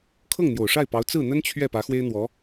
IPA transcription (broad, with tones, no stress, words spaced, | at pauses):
kʰɤ˥˩ŋn̪jo˨˩ʊ̯ʂa˥˩ɪ̯pɑ˧˥ʊ̯ t͡sɹ̩˥˩n̪ə˥nt͡ɕʰɥɛ˥˩ pä˧˥xwe˥ɪ̯n̪wɔ˧˥